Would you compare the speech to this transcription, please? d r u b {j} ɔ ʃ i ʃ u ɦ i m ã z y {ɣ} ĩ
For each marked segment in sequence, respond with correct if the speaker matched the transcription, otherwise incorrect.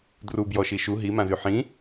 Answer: correct, incorrect: ħ

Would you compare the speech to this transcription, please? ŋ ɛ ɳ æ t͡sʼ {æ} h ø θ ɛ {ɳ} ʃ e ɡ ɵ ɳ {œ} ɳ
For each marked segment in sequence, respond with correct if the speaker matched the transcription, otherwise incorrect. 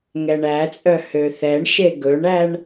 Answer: incorrect: œ, correct, incorrect: æ

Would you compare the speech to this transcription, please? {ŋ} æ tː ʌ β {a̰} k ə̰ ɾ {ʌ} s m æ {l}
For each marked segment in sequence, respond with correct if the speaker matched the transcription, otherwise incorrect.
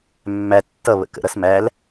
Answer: incorrect: mː, incorrect: ə̰, correct, correct

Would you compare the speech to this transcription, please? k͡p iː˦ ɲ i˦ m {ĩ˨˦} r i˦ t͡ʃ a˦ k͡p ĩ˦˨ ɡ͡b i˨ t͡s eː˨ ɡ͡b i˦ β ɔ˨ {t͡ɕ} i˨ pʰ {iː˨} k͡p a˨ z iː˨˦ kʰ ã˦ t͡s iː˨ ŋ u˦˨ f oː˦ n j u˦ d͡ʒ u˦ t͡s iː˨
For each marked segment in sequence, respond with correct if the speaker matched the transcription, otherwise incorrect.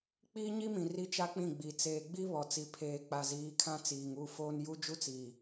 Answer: incorrect: ĩ˨, incorrect: t͡s, incorrect: eː˨

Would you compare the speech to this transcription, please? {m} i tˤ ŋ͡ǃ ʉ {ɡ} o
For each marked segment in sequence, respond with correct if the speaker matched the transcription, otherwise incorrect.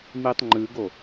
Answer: correct, correct

